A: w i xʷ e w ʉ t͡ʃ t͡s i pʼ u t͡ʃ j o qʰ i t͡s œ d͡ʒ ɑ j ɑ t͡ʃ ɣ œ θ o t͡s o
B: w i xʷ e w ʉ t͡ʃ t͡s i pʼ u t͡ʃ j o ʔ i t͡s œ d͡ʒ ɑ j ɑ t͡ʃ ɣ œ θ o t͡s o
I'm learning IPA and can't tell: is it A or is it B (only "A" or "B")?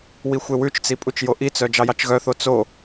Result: B